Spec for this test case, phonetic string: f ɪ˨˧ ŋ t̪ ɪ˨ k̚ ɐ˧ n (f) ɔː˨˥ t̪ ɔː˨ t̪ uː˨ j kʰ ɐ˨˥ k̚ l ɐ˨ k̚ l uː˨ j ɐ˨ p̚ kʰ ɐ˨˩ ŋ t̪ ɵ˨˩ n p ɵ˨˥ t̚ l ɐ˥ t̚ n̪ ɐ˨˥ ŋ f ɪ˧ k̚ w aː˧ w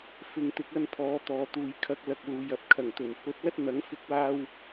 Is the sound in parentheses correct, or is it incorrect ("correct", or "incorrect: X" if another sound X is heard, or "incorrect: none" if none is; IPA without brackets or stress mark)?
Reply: incorrect: pʰ